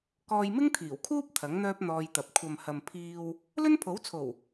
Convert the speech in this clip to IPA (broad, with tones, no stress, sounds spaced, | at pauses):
k ɔː˧ j m ɪ˥ ŋ t̪ʰ iː˨˩ w kʰ uː˥ p̚ t̪ʰ ɐ˨˥ ŋ n̪ œː˥ p̚ n̪ ɔː˧ j t̪ ɐ˨ p̚ kʷʰ ɐ˨ m h ɐ˨ m pʰ iː˧ w | l ɵ˥ n pʰ o˨˥ w t͡sʰ o˨˩ w